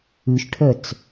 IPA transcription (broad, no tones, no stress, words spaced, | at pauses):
ʉʃʈʰœt͡s